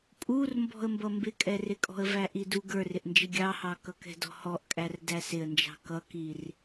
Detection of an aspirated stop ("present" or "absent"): absent